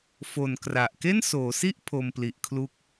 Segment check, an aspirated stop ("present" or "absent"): present